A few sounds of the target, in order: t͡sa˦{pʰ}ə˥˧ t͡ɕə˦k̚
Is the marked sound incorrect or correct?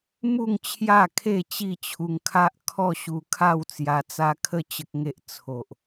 incorrect